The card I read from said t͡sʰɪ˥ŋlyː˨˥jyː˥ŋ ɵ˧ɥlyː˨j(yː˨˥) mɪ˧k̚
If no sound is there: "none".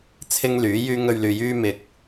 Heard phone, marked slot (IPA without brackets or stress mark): yː˥